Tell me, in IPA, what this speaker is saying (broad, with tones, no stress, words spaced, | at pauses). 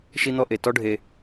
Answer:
ʃi˧n̪ɔ˧ʔe˨ tɔ˦ɖʱe˧